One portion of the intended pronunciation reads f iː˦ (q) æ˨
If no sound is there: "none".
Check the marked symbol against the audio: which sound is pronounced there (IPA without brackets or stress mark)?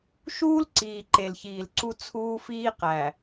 q